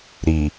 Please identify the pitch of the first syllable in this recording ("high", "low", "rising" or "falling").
low